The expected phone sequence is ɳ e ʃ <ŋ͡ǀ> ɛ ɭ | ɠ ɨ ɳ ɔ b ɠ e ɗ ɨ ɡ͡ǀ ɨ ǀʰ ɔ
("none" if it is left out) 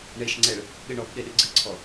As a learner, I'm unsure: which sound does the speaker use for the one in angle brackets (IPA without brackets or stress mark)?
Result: ŋ͡ǀ